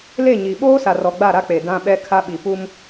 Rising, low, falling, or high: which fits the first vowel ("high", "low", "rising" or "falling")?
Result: falling